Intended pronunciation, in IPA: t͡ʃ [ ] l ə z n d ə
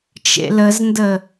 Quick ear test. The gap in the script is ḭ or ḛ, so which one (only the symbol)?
ḛ